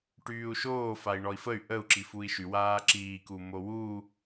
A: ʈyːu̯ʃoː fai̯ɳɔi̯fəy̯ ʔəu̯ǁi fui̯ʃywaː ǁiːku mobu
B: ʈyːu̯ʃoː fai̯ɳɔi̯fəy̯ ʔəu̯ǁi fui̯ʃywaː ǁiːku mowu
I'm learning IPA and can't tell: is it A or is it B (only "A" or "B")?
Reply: B